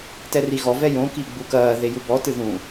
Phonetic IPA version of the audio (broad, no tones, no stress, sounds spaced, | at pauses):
t ɛ r i ɣ ɔ v ɛ j õ k i ɡ͡b u k ɐː ð e j u b ɔ t ɨ ð ũ